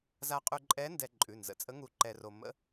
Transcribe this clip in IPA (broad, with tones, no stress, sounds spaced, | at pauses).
z a˧ qʼ ʉ˧ ǃʼ ɛ˧˥ n d ɛ˧ ǃʼ ʉ˩˧˩ n z ə̰˩˧˩ t͡sʼ ə˧˥ ŋ u˧˥ ǃ ɛ˧ r o˧ m ə̰˧˥